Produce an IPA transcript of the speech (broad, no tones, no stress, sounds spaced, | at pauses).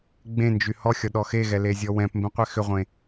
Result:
ɡ͡b ẽ n d͡ʒ y h ɔ xʲ ɔ ɗ ɔ x e ɣ ɛ l e zʲ ɔ w ɛ̃ p m b ẽ qʷ ɛ x ʏ ʁʷ ẽ